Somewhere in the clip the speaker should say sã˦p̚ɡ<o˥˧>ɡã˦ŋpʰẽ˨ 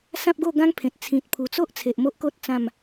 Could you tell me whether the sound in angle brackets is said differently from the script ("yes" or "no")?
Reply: no